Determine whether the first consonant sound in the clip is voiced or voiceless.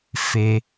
voiceless